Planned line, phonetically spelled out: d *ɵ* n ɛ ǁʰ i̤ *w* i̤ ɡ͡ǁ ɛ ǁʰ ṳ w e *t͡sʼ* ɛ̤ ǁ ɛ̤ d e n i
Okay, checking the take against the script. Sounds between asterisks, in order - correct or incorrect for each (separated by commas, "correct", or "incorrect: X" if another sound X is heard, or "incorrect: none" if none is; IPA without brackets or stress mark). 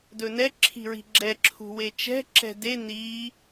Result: correct, incorrect: ɹ, incorrect: t͡ʃ